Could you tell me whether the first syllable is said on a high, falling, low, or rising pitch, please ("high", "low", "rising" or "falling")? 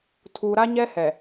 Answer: low